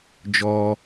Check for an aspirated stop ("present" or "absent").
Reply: absent